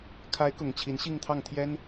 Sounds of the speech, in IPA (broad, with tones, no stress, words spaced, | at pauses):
kʰa˧˥ɪ̯kʊ˨˩ŋ t͡ɕʰi˧˥nɕi˥˧ŋt̪ʰɑ˥˩ŋt̪ʰjɛ˥n